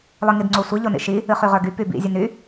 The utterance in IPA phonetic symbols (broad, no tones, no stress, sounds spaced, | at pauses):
lˠ ɨ ŋ i d ŋ͡ǀ o sʷ i ʎ o n ḭ ʃ i | ɨ χ y ʁ ə˞ ɡ y p y b ḭ zʲ ɨ n y